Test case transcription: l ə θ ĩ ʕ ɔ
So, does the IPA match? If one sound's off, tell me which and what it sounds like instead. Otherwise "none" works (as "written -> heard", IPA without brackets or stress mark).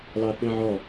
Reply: ə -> ɑ